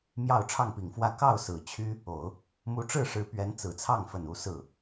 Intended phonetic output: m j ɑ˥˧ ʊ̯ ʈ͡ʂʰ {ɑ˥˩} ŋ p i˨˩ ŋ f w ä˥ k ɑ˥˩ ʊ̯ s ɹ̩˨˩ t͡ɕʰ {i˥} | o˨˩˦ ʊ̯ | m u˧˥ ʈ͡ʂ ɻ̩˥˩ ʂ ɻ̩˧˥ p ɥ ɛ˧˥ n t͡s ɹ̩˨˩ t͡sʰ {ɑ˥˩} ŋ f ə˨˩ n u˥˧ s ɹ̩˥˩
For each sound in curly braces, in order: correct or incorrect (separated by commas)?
correct, incorrect, correct